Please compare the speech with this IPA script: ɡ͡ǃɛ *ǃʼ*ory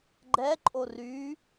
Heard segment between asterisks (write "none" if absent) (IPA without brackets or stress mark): ǃʼ